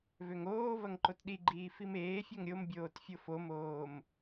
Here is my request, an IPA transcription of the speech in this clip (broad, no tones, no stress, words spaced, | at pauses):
vøŋoːvɐŋ ǃotɗiɡ͡ǃiː fimeːfʲoŋ ɾʲombʲoːt fʲofomoːm